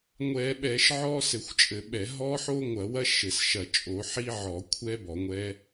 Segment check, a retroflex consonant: absent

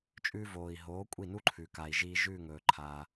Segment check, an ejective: present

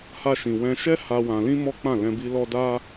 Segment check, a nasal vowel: present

